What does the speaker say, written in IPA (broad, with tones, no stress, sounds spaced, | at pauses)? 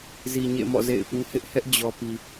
z i˨ ɲ ḛ˦˨ m ɔ̰˦˨ z ḛ˦˨ ɪ̯ p ũ˦ h ɪ˦ ʔ h ɛ˦ ʔ d͡ʑ ɔ˨ p i˨